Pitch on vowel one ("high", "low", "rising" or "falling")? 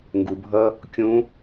low